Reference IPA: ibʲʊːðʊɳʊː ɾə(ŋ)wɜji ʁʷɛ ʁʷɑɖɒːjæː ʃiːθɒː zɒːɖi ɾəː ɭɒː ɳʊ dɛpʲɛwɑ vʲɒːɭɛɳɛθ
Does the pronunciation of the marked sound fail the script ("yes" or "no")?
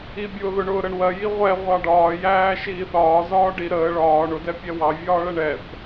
yes